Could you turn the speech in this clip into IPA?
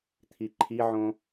t̪ʰ i ǃʰ i ʕ õ

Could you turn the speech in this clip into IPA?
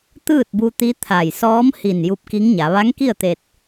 t̪ ɯː˥˨ t̚ b u˧ t̪ i˧˥ t̪ʰ a˧˩ j s ɔː˧˥ m h i˧˩ n j u˧˥ p̚ k i˧˥ ŋ ɲ a˩˧ ʋ a˧˥ ŋ k i˥˨ ə̯ t̪ e˧ t̚

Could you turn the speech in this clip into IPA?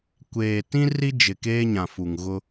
kʷ eː˨ t ĩ˦ r i˦ d͡ʒ ɪ˨ k eː˦ ɲ ã˨ f u˨ ŋ ɣ ʊ˦

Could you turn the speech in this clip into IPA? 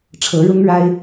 ʈ͡ʂʰ ɤ˧˥ ɻ ʊ˥ ŋ ɻ a˥ ɪ̯

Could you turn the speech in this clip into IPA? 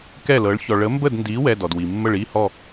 k ɛ˥˨ l ɤ˨˥ ɭ ç ɔ˧ ɭ ə˨˥ m b ə˥˨ d n d i˨˥ w ɛ˧˥˧ d ɔ˩ d w i˩ mː ə˥˨ ɭ i˧˥˧ h ɔ˥˨

